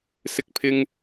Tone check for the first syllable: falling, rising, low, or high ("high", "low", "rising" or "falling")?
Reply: high